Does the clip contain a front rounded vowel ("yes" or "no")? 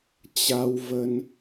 no